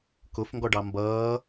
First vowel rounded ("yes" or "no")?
yes